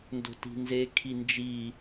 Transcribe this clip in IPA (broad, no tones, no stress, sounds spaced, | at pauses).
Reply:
n d o̤ t i̤ n z e kʰ i n d͡ʒ i